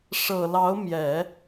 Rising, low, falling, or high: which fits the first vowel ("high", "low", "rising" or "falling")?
low